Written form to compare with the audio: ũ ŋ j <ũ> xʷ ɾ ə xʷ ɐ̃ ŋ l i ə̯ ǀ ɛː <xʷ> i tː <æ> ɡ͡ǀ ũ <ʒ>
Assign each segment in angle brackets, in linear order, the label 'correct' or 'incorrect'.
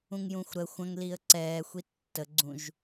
correct, correct, incorrect: ə, correct

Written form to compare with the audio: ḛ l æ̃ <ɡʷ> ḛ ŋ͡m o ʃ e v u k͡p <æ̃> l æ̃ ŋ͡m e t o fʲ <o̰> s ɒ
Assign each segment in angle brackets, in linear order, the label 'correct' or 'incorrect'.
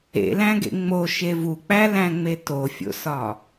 incorrect: ɡ, incorrect: æ, correct

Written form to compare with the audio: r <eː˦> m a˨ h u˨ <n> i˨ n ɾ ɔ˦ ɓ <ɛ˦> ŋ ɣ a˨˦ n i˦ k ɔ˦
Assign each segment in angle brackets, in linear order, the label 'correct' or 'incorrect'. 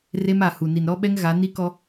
incorrect: e˦, correct, correct

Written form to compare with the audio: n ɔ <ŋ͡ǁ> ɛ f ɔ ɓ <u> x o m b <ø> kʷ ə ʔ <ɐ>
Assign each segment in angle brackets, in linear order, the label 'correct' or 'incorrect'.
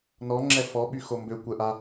correct, incorrect: y, correct, incorrect: a

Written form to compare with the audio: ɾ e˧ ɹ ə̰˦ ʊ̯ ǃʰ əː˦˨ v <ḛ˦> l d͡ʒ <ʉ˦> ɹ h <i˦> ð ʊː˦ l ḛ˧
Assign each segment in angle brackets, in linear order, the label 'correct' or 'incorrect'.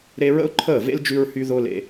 correct, correct, incorrect: y˦

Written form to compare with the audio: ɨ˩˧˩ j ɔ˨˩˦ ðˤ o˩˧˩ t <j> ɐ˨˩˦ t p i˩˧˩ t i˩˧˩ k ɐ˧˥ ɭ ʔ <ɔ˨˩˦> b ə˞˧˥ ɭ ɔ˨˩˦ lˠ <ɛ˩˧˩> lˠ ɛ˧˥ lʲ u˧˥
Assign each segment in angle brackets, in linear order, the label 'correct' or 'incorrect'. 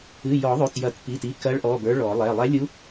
correct, incorrect: ɔ˩˧˩, correct

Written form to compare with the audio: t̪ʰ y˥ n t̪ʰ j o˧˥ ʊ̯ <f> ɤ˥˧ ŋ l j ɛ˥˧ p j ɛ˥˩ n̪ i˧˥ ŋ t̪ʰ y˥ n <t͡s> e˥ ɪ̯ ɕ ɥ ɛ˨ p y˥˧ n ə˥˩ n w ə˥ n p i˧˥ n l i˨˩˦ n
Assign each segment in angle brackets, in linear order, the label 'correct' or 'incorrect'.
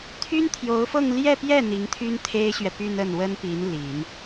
correct, incorrect: t̪ʰ

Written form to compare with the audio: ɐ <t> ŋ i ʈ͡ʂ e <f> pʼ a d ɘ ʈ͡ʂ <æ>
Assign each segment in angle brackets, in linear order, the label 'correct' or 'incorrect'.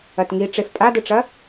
correct, correct, incorrect: ɐ

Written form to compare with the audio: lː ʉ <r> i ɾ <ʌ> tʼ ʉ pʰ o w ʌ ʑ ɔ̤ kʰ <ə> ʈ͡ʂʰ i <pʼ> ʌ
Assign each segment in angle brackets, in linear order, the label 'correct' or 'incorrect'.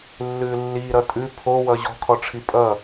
incorrect: lː, correct, incorrect: ɔ, correct

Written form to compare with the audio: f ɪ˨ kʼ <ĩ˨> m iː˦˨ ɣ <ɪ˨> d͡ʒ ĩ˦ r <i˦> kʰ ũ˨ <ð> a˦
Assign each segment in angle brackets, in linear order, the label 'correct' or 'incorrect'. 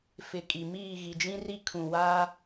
incorrect: i˨, incorrect: i˨, correct, incorrect: w

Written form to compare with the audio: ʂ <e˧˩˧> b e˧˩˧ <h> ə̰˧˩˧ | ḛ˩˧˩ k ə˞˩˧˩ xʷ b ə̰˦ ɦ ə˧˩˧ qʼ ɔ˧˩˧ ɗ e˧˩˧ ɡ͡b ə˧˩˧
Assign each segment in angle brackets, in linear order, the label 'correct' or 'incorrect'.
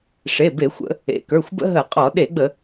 incorrect: e˩˧˩, incorrect: xʷ

